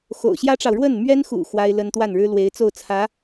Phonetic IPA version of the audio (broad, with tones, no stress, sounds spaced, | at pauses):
x o̰˨˩ ʊ̯ ɕ j ä˥ ʈ͡ʂ ɑ˨ ʊ̯ ɻ w ə˥˩ n m ɥ ɛ˥ n x ṵ˨˩ x w a˥ ɪ̯ l ə˥ n t̪ w a˥˩ n ɻ ɻ̩˥ l w e˧˥ ɪ̯ t͡s o˥˩ ʊ̯ t͡sʰ ä˧˥